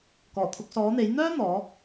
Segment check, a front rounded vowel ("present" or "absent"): present